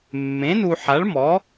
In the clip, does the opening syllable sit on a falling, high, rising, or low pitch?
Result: rising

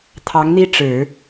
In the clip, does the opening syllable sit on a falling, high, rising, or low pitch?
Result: rising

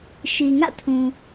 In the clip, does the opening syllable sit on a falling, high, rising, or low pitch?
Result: low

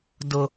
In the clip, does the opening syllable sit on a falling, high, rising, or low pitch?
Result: high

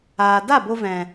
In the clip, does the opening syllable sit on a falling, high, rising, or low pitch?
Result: low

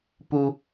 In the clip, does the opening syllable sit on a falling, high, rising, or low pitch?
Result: low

